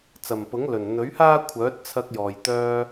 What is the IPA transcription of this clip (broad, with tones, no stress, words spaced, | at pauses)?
t͡sɐ˨˩mpʊ˨˥ŋlɵ˨˩n n̪ɵ˨˥ɥhaː˥ kʷʰœː˨˥t̚t͡sʰɐ˧k̚jɔː˨˩j t̪œː˧